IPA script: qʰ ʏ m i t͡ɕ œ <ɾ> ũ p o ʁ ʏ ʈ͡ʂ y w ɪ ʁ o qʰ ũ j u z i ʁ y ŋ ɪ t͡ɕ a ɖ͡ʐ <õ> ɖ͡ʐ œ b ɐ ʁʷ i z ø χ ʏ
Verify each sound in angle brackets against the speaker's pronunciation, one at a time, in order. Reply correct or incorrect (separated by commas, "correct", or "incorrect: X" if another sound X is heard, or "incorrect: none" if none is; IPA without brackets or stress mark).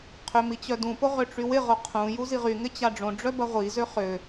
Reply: incorrect: d, correct